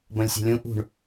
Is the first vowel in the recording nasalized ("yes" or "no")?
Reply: yes